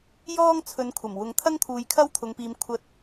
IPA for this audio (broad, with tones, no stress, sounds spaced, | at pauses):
j ɔː˥ ŋ t͡sʰ ɵ˨˧ n kʷʰ ɐ˨˩ m w ʊ˨˧ ŋ t̪ʰ ɐ˥ ŋ t̪ʰ uː˨˧ j kʰ ɐ˥ w t̪ʰ ʊ˨ ŋ p iː˨ m kʷʰ ɐ˨ t̚